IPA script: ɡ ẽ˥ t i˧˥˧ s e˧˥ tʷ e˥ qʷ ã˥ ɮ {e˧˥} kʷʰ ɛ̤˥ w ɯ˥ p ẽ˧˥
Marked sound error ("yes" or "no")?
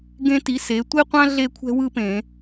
yes